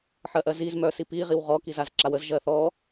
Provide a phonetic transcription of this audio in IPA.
ħ ɜ ʔ ɜ z i z m œ s i p i ʁ i w ʁ ɔ k i z a z ǁ a w ə z ʒ ɜ θ ɔ

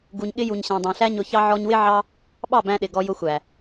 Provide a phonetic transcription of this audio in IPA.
ɡ u˨ ɲ ɠ ɪ˧ j u˨ ɲ ɕ æ̃˨ dˤ æ̃˨ ɬ æ˦ ɲ ʊ˧ ç ɑ˦ ʕ ɔ˧ ɲ w ɪ˦ ʕ ɑ˦ | ɓ ɑ˦˨ b æ̃˧ ɗ ɪ˨ ɡ ɔ˧ j ʊ˧ xʷ æ˨

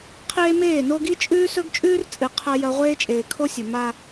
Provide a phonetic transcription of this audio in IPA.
qʰ eː˦ m eː˦˨ n o˦ ɡ i˦ t͡ʃʼ ʉː˦ s ɵ˦ ɡ t͡ʃʼ ʉː˦ r t͡sʼ ɨ˨ qʰ ɐ˦ j ɐ˦ ʁʷ eː˦ t͡ʃʼ eː˨ kʰ o˦ sʲ ɵ˨ m a˦

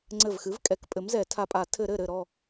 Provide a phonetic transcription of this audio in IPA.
ŋ͡ǀ ɘ˧˩ v x ɨ˩˥ v kʼ ɛ˩˥ k pʼ ɘ˩˥ m z ɛ˧˩˧ tʰ a˧˩ pʼ a˧˩˧ tʰ ɘ˧˩˧ ɾ ɘ˧˩ ɾ ɘ˧˩ ɾ ɔ˧˩

